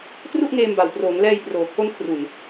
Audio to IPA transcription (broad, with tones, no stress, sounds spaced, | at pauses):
t r u˥˩ ʔ ŋ eː˧ m b a˨˩ w p r oː˩˦ ŋ l ɛː˧ j p r oː˨˩ kʰ o˦˥ n kʰ r u˨˩ n